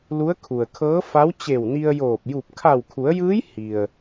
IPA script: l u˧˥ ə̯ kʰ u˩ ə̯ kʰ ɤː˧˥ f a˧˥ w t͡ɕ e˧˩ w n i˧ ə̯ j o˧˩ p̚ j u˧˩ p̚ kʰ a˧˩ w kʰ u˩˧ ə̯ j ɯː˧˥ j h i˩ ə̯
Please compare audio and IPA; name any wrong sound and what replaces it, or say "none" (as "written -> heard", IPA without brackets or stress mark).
o˧˩ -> oː˧˩